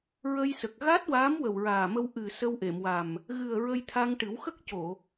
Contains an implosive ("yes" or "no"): no